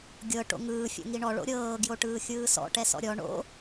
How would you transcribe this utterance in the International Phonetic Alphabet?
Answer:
ɡʲɤ ʈo̰ŋɯː fʲo̰ŋiɳɔ ɭo̰ɾʲɤː ɡjoʈɯːxʲɯːsɔ̰ ʈɛsɔ̰ɾʲɔ ɳo̰

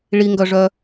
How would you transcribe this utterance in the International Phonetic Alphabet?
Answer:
ɭiŋɡœʐœ

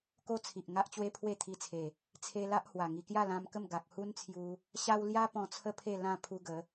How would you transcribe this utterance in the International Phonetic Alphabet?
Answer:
ko˦t͡sʰi˨ʔ ŋa˦ʔt͡ɕwe˦pʰwe˥˧t̪ʰi˧ t͡sʰe˨˩ | t͡sʰe˧ la˦ʔhwa˨˩ŋi˧ kja˥˧lã˧mkə˥˧m ɡa˨k̚hu˦nt͡sʰju˧ | ɕa˦w lja˦ pɔ̃˧t͡sʰə˥˧pʰe˥˧ lã˥˧pʰu˧ɡə˨˦

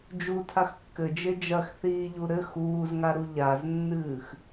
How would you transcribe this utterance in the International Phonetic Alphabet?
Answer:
d͡ʒutʰax kːɘd͡ʒe d͡ʒɐxθiːʎu ɾɘ xuːzŋaɾu ʎaznːɨːx

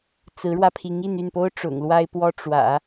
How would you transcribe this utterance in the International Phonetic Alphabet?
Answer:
t͡sɹ̩˧˥ɻwä˧pʰi˧˥ŋi˥˧n y˥˩npo˥ʊ̯ʈ͡ʂʊ̰˨˩ŋ lwa˥ɪ̯pwɔ˥ ʈ͡ʂwä̰˨˩˦

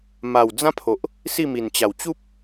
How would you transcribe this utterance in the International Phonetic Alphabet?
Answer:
ma˨˩w d͡zã˦pʰo˨ʔ | si˥˧mi˨˩nt͡ɕa˨˩w t͡ɕu˦p̚

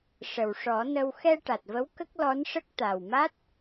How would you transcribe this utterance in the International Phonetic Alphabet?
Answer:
ʂə˨˩wʂɔ˨˩˦nə˧w xɛ˧ ʈa˨˩t̚və˧˥w kə˦˥k̚lɔ˧˥nʂə˦˥k̚ t̪a˨˩wma˦˥t̚

